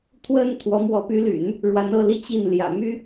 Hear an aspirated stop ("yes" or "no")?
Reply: yes